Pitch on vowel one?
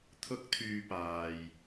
high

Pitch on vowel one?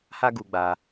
high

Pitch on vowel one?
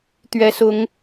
rising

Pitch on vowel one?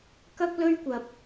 high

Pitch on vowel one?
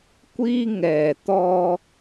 high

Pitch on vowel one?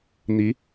rising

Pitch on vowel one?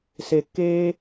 low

